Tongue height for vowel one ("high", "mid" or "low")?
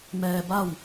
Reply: mid